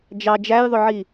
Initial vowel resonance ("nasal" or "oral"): oral